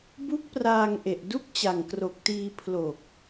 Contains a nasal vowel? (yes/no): no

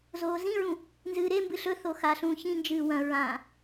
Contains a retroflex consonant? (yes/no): no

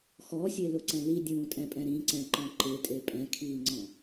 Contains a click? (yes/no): yes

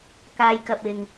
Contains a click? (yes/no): no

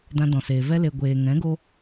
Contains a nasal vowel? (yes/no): yes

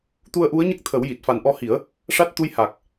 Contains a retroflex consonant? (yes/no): yes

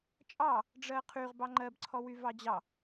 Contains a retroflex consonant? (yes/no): yes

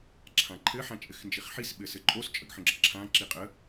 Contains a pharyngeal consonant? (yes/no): yes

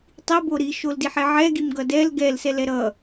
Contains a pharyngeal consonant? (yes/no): yes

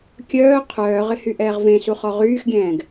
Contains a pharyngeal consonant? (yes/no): no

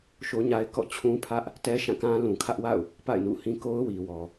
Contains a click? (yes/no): no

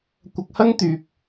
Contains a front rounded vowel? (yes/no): yes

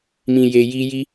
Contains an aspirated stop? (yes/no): no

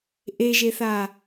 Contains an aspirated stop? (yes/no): no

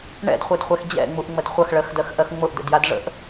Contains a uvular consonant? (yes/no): yes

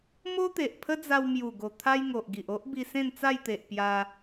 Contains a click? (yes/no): no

